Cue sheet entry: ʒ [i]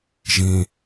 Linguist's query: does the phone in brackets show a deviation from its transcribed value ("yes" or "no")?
yes